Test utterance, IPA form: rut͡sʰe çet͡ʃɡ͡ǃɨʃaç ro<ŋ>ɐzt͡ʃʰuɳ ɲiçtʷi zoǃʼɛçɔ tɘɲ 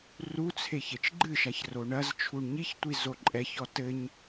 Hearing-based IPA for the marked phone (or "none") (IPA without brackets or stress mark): ɳ